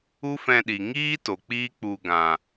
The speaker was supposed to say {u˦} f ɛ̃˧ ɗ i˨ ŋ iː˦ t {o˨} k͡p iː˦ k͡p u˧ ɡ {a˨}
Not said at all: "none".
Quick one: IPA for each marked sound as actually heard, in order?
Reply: u˦, o˨, ã˨

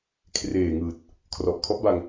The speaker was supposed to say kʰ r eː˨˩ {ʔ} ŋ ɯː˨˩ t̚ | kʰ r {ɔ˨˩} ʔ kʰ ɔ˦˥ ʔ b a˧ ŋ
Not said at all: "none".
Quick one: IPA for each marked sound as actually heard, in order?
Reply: none, ɔ˨˩

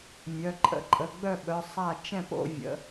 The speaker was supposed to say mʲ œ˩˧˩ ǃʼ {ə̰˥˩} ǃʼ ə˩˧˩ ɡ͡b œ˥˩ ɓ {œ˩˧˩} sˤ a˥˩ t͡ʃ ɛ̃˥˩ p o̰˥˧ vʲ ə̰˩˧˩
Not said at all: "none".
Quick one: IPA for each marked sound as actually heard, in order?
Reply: ə̰˥˩, œ˩˧˩

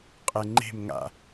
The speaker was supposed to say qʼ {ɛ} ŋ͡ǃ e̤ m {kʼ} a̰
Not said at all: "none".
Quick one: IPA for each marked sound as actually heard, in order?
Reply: ɛ, ŋ

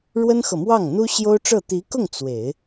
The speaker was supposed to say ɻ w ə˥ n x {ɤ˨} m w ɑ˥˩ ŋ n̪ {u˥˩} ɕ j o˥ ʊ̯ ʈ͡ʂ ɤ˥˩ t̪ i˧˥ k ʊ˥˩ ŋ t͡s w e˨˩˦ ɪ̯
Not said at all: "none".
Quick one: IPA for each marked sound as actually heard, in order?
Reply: ɤ˨, u˥

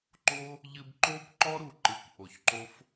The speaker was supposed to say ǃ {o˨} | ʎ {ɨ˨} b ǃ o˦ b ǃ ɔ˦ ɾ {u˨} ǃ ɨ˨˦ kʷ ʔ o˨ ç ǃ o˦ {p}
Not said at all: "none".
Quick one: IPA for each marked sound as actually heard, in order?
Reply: o˦, ɨ˧, u˨, f

